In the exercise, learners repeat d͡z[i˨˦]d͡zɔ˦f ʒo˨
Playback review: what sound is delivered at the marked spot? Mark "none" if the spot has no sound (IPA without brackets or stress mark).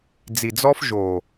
i˨